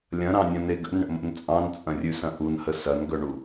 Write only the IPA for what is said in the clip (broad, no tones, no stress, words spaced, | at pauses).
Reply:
lʲɐ̃ɾɑ̃nʲɐ̃ne ɡə̰nɳə̰mə̰n t͡sʼɑ̃nt͡sʼɐ̃rʲʉsɐ̃ ʔunhə sɐnɡœɳu